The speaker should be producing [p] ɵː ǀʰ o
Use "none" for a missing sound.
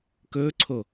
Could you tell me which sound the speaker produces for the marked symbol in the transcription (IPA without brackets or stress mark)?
k